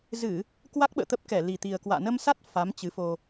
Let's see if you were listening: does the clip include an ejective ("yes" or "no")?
no